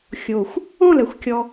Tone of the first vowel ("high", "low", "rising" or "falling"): low